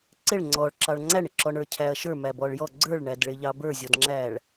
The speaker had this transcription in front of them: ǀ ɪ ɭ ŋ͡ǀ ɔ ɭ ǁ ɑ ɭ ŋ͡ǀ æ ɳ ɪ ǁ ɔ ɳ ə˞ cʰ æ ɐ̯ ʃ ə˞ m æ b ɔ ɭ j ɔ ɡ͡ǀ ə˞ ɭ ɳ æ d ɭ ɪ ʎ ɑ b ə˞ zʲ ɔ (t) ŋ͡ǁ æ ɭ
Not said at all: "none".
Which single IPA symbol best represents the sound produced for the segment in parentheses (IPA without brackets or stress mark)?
d